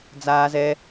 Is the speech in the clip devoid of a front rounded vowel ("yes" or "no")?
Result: yes